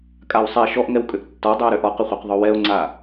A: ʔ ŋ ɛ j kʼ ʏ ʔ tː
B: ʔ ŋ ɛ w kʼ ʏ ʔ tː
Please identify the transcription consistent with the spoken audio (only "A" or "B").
B